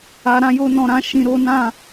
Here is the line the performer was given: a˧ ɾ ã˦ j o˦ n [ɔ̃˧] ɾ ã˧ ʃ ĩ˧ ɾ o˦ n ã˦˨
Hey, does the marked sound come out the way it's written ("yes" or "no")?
yes